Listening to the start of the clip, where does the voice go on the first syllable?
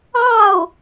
falling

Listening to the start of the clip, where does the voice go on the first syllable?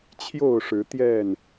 falling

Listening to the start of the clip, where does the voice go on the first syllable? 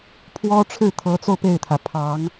high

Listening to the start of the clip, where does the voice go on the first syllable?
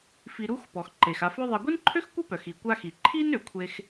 low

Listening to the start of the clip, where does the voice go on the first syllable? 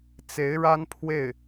rising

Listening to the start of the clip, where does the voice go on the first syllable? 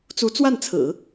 rising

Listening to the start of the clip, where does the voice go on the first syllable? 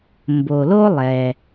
low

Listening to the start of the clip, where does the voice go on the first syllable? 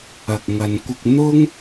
low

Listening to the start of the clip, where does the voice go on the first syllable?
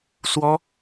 high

